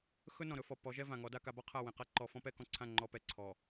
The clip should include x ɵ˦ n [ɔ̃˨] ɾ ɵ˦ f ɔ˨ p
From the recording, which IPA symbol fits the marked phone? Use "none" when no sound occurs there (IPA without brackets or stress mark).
ɔ̃˨